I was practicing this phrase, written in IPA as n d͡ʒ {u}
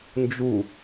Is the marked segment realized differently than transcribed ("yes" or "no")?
no